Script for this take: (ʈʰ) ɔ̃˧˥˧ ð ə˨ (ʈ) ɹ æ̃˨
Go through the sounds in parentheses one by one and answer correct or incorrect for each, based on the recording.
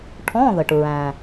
correct, correct

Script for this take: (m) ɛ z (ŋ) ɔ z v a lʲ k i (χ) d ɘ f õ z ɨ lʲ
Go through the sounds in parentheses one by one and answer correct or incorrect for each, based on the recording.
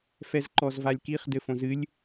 incorrect: f, incorrect: ǃ, correct

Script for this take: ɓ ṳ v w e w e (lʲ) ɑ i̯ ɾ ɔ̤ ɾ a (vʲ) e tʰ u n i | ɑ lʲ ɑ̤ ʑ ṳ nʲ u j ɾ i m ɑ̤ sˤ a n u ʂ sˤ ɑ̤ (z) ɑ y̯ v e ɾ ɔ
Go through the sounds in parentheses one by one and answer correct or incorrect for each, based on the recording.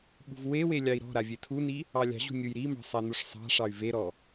correct, correct, incorrect: ʂ

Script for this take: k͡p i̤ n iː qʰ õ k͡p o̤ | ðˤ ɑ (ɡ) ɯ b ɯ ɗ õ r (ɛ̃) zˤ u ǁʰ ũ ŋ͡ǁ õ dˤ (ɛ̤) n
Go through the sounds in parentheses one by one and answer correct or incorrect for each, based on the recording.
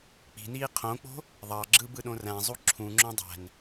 incorrect: ɡ͡ǁ, incorrect: æ̃, incorrect: æ̤

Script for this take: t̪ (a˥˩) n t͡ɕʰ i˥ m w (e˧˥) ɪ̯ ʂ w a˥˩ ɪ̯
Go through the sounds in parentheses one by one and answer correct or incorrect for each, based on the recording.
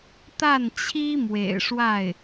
correct, incorrect: ḛ˨˩

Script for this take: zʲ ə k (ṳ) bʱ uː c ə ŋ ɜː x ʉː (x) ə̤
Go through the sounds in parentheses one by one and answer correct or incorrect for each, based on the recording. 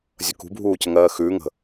correct, incorrect: ŋ

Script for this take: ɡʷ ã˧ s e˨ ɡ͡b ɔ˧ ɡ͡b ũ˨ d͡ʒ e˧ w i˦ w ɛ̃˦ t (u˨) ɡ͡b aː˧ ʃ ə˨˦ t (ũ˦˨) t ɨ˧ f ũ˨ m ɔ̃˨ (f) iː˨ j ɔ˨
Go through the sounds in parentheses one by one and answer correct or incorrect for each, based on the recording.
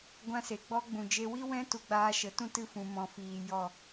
incorrect: u˧, incorrect: ũ˧, correct

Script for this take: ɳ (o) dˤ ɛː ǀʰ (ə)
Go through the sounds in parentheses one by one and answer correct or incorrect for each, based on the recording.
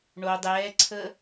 correct, incorrect: əː

